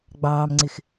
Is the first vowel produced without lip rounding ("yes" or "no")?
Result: yes